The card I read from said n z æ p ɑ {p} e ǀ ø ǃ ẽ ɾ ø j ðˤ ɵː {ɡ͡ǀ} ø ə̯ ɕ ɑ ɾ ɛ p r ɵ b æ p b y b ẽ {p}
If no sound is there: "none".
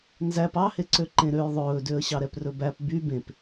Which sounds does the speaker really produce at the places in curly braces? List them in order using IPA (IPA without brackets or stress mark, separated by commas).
h, d, p